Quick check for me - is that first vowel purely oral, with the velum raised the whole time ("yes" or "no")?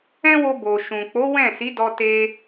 no